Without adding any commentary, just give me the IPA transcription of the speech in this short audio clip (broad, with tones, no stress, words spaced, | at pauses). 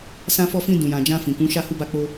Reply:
sã˧fɔ˧fĩ˧ dũ˨jã˨d͡ʒã˧ fĩ˨kũ˨˦ ʃa˦˨hu˧ba˧k͡po˧